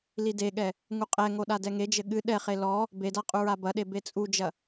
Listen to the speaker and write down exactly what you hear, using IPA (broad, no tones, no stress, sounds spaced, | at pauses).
l i d e ɠ ɛ | ŋ u qʼ ɛ ŋ o ɗ a d ɛ ŋ e d͡ʒ ɘ ɠ ɨ ɗ ɛ χ e l ɔ | b e d a qʼ u ɹ a b ɐ ɗ e b e t͡sʼ u d͡ʒ ɐ